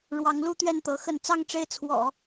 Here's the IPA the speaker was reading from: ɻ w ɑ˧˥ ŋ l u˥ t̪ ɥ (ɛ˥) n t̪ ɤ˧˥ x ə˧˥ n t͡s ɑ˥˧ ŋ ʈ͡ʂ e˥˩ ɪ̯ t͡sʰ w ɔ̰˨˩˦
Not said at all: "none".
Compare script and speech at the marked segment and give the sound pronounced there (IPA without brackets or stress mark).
ɛ˥˩